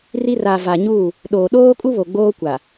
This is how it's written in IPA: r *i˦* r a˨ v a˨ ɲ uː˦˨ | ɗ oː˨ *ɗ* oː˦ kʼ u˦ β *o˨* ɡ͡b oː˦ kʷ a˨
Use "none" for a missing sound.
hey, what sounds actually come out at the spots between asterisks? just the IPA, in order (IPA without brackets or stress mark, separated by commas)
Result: i˦, ɗ, o˨